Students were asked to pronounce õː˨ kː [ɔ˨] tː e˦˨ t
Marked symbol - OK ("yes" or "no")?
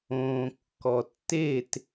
yes